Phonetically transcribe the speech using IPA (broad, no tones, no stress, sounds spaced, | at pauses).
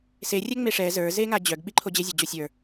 s e rʲ ɛ ŋ͡m e ʂ ɛ z ə˞ z e ŋ a d͡ʑ œ ɡ ɓ i ǃʰ o d͡ʑ e zʲ a d͡ʑ o sʲ ə˞